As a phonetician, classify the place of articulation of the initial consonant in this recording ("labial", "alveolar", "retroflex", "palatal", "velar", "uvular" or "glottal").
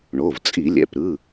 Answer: retroflex